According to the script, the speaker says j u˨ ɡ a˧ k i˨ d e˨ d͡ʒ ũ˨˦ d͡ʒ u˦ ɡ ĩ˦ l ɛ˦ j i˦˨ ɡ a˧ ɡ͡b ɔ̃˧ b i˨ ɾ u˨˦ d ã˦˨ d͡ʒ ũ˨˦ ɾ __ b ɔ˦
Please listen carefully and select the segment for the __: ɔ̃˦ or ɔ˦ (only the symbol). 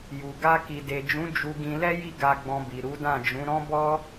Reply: ɔ̃˦